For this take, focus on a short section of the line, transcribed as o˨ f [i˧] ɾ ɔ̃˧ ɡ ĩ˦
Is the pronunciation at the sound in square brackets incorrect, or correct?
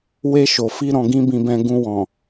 correct